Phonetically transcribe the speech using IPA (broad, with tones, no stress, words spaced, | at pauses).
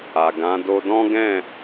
a˨ ɡã˨˦ do˧dɔ̃˦ɡɛ̃˦˨